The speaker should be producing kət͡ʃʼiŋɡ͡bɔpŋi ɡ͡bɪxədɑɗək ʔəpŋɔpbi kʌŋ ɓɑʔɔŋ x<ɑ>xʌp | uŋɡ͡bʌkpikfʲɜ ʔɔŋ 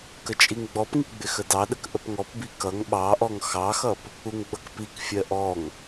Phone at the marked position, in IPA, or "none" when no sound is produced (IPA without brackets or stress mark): ɑ